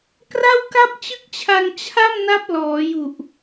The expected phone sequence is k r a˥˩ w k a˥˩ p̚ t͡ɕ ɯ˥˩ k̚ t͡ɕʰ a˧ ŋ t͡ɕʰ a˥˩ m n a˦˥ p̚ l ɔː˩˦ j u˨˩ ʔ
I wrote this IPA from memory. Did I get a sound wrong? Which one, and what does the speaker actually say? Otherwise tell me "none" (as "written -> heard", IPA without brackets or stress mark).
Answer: none